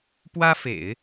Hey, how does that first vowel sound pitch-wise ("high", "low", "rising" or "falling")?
high